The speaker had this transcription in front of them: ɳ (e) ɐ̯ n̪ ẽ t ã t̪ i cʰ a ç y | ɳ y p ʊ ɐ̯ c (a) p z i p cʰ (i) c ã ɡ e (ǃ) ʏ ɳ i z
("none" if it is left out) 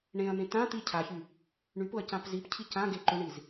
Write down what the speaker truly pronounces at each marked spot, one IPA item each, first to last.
ẽ, ã, i, ǃ

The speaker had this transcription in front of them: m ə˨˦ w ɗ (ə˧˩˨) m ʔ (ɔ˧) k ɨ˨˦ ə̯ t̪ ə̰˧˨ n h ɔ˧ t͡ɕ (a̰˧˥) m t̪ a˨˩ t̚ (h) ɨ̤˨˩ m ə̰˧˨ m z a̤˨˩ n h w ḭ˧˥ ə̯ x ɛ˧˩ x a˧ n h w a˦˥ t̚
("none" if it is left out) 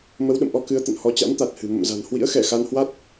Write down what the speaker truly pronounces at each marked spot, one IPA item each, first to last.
ə̰˧˨, ɔ˧, a̰˧˥, h

